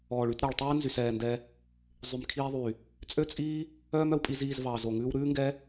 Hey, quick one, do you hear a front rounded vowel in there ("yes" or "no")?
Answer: yes